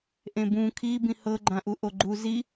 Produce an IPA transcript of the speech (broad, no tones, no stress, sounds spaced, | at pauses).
ʔ ẽ b ũ kʰ i b ĩ h ɤ ɡ͡ǃ ã ʔ u ʔ o ɡ͡ǃ u z i